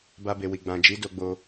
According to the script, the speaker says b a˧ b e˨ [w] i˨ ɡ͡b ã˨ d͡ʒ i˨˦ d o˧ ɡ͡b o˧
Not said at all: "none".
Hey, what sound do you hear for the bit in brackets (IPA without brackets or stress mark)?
w